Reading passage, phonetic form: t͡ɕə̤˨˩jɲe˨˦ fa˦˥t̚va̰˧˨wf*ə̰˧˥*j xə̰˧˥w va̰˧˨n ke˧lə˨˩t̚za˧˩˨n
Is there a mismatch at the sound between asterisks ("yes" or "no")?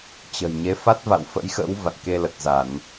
no